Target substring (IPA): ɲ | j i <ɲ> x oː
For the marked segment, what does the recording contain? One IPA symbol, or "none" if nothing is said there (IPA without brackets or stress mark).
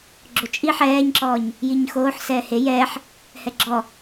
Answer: ɲ